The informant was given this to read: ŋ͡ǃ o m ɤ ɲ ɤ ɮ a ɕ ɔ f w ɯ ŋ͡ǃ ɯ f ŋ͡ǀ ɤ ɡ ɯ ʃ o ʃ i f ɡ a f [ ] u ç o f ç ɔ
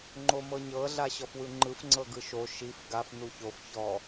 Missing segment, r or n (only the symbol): n